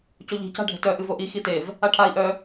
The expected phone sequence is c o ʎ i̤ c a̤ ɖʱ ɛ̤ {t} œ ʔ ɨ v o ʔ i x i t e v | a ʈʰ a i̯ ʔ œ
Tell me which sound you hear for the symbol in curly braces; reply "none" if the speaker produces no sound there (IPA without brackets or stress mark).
t